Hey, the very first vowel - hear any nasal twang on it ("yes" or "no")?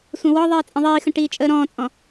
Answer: yes